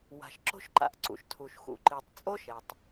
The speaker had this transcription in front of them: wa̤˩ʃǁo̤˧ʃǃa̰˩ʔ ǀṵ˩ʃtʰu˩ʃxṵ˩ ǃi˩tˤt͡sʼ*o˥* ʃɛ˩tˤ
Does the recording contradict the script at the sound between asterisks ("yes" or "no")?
no